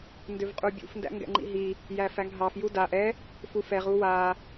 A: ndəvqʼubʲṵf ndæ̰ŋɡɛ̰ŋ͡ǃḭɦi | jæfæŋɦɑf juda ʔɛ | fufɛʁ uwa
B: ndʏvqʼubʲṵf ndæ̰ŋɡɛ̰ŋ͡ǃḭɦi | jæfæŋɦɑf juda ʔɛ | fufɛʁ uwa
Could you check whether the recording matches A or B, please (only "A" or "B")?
B